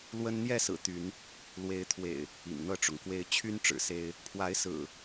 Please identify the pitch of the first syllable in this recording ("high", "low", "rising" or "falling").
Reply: high